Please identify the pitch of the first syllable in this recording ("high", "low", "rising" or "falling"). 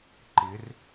rising